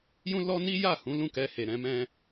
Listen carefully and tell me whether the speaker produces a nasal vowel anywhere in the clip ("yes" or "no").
yes